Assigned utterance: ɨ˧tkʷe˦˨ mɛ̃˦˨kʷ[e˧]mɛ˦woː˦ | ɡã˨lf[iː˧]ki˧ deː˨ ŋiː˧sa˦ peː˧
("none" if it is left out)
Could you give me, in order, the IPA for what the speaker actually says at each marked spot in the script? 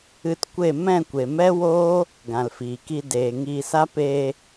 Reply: e˨, iː˨

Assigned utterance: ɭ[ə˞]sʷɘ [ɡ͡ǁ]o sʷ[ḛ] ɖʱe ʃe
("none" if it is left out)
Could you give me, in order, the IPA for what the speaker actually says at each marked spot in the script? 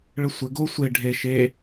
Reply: ə, ɡ, e

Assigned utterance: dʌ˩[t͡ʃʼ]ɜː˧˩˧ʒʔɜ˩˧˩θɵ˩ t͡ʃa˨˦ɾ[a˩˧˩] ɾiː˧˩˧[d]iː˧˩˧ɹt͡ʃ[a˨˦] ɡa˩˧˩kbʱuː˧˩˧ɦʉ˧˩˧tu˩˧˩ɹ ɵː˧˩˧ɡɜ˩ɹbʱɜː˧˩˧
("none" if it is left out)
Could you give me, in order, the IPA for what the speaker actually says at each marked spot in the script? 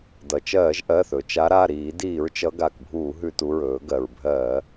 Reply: t͡ʃ, a˩˧˩, d, ʌ˨˦

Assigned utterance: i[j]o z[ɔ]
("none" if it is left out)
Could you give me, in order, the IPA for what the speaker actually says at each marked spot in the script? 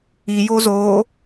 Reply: j, o

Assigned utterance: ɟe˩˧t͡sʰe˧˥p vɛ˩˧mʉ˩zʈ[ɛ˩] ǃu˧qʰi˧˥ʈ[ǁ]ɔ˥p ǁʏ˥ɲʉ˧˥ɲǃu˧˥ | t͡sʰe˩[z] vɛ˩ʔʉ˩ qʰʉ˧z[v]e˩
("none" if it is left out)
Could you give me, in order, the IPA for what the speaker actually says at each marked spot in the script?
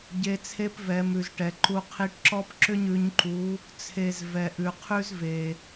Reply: ɛ˩, ǁ, z, v

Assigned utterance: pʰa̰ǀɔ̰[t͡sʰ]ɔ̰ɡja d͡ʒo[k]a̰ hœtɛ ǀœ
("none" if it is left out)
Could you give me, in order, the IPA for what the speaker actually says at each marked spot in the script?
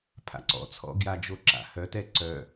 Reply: t͡sʰ, ǁ

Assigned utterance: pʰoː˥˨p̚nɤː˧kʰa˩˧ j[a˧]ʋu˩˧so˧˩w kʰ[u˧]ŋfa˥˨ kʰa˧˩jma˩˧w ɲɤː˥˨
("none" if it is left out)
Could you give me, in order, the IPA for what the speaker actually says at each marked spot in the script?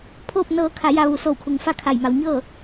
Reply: a˧, u˩˧

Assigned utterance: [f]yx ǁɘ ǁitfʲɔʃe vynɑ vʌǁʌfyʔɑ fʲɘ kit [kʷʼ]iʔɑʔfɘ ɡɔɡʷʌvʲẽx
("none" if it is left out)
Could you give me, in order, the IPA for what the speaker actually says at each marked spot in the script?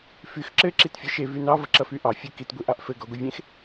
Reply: f, ɡʷ

